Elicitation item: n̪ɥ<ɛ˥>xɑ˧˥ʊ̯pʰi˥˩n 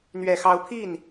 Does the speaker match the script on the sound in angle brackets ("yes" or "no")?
no